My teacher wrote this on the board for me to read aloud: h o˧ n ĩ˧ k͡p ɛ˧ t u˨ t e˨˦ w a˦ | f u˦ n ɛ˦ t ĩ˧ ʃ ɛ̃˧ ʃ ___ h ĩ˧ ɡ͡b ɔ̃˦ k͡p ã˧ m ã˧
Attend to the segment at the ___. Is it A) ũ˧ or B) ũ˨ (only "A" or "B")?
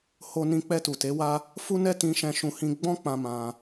A